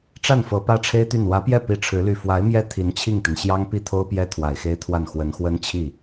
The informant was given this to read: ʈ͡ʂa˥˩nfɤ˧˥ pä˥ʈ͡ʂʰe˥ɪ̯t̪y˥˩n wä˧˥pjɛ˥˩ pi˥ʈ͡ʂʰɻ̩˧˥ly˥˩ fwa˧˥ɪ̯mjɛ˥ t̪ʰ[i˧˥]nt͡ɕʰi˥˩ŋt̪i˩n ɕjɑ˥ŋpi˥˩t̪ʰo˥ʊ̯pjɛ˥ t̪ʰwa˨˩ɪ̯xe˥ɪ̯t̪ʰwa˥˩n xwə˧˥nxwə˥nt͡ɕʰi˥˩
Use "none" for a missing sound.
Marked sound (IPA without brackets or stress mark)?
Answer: i˧˥